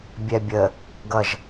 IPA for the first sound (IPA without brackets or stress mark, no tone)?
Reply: bʲ